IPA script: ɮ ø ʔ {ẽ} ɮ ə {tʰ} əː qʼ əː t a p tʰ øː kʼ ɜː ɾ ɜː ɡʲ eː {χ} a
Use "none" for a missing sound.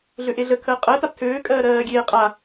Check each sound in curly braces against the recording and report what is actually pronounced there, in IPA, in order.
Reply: e, kʰ, qʼ

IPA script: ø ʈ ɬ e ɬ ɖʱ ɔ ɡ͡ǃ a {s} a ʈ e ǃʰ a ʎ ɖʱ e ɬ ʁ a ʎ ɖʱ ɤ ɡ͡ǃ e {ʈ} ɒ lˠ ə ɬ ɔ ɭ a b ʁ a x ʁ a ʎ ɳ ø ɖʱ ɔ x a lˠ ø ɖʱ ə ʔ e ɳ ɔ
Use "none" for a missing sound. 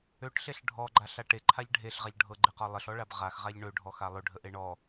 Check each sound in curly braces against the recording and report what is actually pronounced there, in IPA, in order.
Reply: ɬ, q

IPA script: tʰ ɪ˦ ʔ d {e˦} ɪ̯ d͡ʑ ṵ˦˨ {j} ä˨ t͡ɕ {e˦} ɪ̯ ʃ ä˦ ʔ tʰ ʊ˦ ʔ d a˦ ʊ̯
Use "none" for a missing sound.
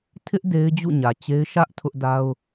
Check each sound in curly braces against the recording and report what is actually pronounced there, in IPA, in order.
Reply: e˦, ɲ, e˦

